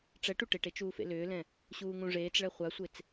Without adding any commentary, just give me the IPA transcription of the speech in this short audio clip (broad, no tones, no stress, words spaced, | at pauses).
ʈ͡ʂɛʈ uʈeʈe t͡ʃuːfḛlʏːlɛ̃ | ɕuːŋũʐeːt͡sɭɛ χʷasʷet͡s